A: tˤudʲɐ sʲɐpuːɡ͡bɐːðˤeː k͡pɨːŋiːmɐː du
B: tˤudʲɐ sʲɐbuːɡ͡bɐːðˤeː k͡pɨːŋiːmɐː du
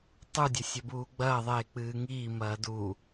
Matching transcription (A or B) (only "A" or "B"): B